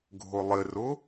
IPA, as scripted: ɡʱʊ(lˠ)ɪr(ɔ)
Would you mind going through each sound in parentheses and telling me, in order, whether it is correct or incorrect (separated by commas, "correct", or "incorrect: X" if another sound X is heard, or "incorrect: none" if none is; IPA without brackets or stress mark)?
correct, incorrect: ʊ